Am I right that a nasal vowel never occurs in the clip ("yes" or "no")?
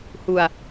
yes